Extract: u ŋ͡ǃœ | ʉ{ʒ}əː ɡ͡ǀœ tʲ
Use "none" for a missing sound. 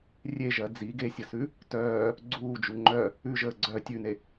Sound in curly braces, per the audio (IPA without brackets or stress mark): ʒ